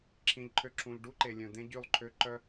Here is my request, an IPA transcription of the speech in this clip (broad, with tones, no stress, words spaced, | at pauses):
ǁʰĩ˨ʎǃʰø˧ ǁʰũ˨ʎɖu˦ǃe˨lʲœ̃˨ d̪ẽ˦ɟy˦˨lˠǃʰø˦ ǃœ˦